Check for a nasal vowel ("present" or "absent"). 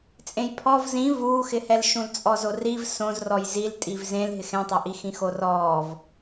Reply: present